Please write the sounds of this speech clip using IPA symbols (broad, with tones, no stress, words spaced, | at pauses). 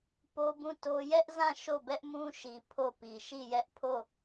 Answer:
po˦bũ˦˨to˦ jɛ˦ʔzã˦˨ ʃo˦˨bɛ˦ʔmũ˦ʃi˨ pʰo˦˨pi˨ ʃi˦˨jɛ˦ʔpʰo˦˨